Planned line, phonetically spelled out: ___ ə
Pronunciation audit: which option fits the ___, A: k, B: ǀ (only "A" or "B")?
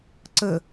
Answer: B